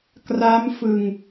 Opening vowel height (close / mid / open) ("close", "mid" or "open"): open